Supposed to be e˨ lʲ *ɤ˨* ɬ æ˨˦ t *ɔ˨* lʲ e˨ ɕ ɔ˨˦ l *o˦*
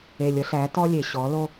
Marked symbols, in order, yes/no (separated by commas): no, no, yes